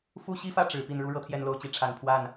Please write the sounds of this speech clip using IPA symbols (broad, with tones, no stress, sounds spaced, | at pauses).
f u˥˩ ɕ i˥ f ä˥˩ ʈ͡ʂ ɻ̩˨˩ p i˥˩ n ɻ u˥ ɻ ɤ˥ t̪ʰ j ɛ˥˧ n l o˥˩ ʊ̯ t͡ɕ i˥ ʈ͡ʂʰ a˨˩ n pʰ w a˥˩ n